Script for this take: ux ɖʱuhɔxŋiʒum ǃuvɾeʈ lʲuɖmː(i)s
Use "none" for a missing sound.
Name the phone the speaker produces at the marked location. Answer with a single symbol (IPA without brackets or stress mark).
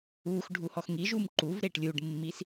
i